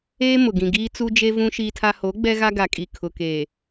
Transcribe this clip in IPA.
eː˦ m ʊ˨ ɡ ĩ˨ ɡ iː˦ t͡s u˦ d͡ʒ e˦ v ũ˦ ʃ iː˦ tʰ a˦ h o˨˦ ɡ͡b ɛ˦ ɣ a˦ ɡ a˨ kʼ i˨ kʰ ʊ˨ k e˨

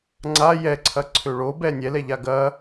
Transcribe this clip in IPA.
ŋ͡ǀ a j ɛ ǀʰ ɐ ǀʰ ø ɭ o b ɛ nʲ ɛ l ɛ ʎ a ɡ ɐ

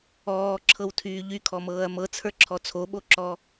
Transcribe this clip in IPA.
ɔː ǁʰ ɤ w tʰ yː ʎ y kʰ ɔ m ɤː ɐ̯ m ɤ t͡sʰ ə˞ ǁʰ ɔ t͡sʰ o ɓ o ǁ ɔ

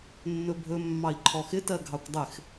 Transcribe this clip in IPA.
nː ɵ bʱ ɵ mː ɑ i̯ ǃʰ ɔ x ɪ t ɜ ɡʱ ɑ kʷ dˤ ɪ x

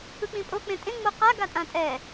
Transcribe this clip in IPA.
ɯ k͡p ĩ pʼ o k͡p ẽ tʼ ẽ ŋ͡m o q a ɡ a tʼ ã tʼ ɛ

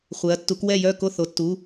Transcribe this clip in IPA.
χʷ ɛ˩˧ ɐ̯ tː u˩˧ k w ɛ˦˨ j œ˦˨ k o˦˨ θ o˩˧ tː u˩˧˩

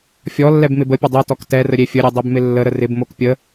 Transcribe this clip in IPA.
fʲ ɔ lː ɛ b m ɪ b ə pʲ ə dˤ ɛ t ɔ k t ɛ r ə ɾʲ e fʲ ə ɾʲ e dˤ e b m ɪ lː ə ɾ ə r ɪ b m o k pʲ ə

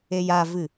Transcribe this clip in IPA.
e j a v ɨ

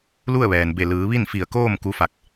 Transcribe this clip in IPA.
l u˥˨ ə̯ ʋ ɛː˩ n b e˧˩ l ɯː˩˧ ʋ i˥˨ n f i˧˩ ə̯ k oː˥˨ m k u˧˥ f a˧ k̚

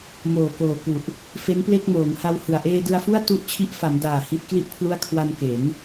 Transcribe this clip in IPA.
m oː˨˩ k oː˨˩ k u˨˩ ʔ | f e˦˥ n p l e˥˩ k̚ m oː˩˦ ŋ h a˧ w h ɯ˨˩ a̯ ʔ eː˧ d ɯ˧ a̯ f u˥˩ a̯ t u˦˥ ʔ t͡ɕʰ i˦˥ ʔ f a˩˦ m d aː˨˩ h i˦˥ t̚ k l i˥˩ ʔ pʰ l u˥˩ a̯ kʰ w a˧ n k e˩˦ n

